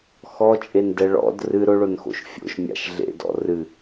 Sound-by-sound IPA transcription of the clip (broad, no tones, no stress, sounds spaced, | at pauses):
x ɔ t͡ʃʼ e n d ɛ ɭ ɔ̰ d r ɨ ɾ ʊ ɭ ʊ n x o̰ ʃ fʲ o̰ ʃ mʲ a̰ ʃ ɮ ḛ d ɔ̰ r ɨ